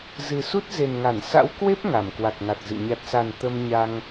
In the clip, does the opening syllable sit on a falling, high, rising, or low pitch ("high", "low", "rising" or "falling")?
low